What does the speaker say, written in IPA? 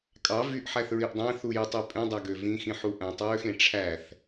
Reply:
kʼ ɑ v y ʔ ħ æ θ ɹ i ʔ dˤ æ̃ θ u j i tˤ y pʼ ẽ dˤ æ ɡ ø v ĩ x ĩ ħ u ʔ æ̃ tˤ ɹ ø x ẽ ʈ͡ʂʰ æ θ

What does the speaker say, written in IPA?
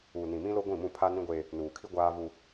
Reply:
uː˨ n ĩ˨ m ĩ˦ l o˦ ɡʷ ĩ˦˨ m ũ˦˨ pʰ a˦ n ĩ˦ ɡʷ eː˦ | n uː˨ kʰ i˦ ɡʷ aː˦ v u˦

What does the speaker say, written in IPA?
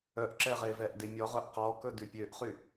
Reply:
œ ʔ ǁ ɛ ʁ e v ɛ ʔ d e mʲ ɔ ʁ œ ʔ q ɔ k ɵ d ʉ pʲ ø ʔ χ y

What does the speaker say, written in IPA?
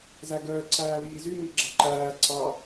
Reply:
z æ ɡ əː ǀʰ æː β iː z y m i ɡ͡ǁ ɑ ǃ æː ǀʰ ɑ

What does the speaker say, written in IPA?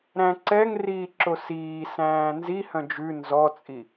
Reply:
ɾ æ̃ ǀ ɛ ŋ r iː ǁ o s iː s æ̃ː n z i h œ̃ d͡ʒ ʉ n z ɔ t͡sʼ i

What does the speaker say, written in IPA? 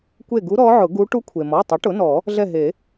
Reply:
kʷ e˦˨ ɡ u˧˥ ɾ ɔ˧˥ ʕ ʊ˨˩˦ ɡ u˧˥ ʈ u˧˥ kʷʰ e˩ m ɔ˩˧˩ tˤ ɪ˩˥ ʈ ʊ˩˥ n ɔ˨˩˦ | ɮ ɛ˦˨ ɦ e˨˩˦

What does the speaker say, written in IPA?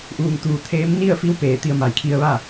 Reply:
ʔ uː˧˩ ŋ t̪ uː˧˩ t̪ʰ eː˧˥ m n i˥˨ ə̯ f i˧˥ w p eː˧˩ t̪ i˧ ə̯ m a˧˩ j kʰ i˧ ə̯ ʋ a˥˨

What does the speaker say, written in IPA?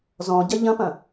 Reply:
z ɔ̃ ɟ ɐ ʎ ɐ̃ p ɐ̃

